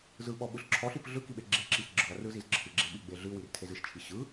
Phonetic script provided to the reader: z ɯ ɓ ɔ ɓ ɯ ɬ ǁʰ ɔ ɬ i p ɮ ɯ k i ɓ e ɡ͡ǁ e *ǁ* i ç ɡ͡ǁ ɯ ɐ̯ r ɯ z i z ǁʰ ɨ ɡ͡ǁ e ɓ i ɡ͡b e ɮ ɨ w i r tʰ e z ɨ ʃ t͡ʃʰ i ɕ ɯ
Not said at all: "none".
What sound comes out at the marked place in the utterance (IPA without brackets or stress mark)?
ǁ